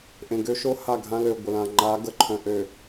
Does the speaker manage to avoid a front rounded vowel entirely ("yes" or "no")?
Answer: no